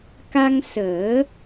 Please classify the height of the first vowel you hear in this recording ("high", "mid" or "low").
low